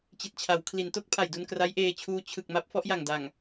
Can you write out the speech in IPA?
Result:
t͡ɕi˨˩t̚t͡ɕʰa˩˦w kʰli˩˦nto˥˩k̚pʰa˨˩jdu˧n kra˦˥jʔeː˧t͡ɕʰuː˦˥ t͡ɕʰɯ˨˩k̚ma˦˥p̚ fɔ˦˥ʔja˨˩ŋ da˨˩ŋ

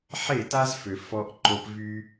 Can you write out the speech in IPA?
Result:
ħe˦˨ta˦zfø˨ fɔ˧ʔǃo˧p vy˧

